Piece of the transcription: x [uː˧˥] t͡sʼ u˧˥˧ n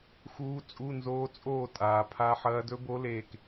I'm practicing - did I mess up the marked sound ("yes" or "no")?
no